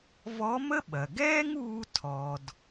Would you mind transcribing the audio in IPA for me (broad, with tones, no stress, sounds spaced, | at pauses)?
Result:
v ɔ˧˥ m ə˥ ɓ ɐ˩ ɡ ɛː˥ ŋ uː˧ tʰ ɔ˩ d